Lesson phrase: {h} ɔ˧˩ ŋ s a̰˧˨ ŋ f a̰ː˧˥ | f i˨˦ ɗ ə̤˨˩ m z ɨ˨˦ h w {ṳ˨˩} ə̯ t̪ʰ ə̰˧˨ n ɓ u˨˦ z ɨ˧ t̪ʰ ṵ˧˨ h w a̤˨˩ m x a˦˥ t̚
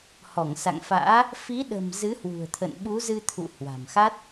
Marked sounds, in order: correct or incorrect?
correct, correct

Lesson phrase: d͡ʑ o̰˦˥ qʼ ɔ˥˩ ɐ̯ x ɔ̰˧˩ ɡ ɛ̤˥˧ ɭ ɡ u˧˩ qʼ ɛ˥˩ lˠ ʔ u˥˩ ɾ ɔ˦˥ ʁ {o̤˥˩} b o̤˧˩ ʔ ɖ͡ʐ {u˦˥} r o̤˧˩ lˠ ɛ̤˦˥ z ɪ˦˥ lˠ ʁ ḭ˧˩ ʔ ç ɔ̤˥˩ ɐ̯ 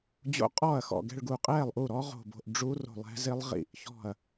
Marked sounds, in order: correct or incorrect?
incorrect, correct

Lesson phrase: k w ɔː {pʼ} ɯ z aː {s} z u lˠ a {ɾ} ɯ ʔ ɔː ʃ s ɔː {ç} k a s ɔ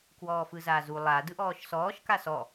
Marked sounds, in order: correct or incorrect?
incorrect, incorrect, incorrect, incorrect

